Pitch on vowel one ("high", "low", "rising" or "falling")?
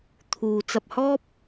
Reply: low